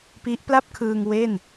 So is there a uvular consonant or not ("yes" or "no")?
no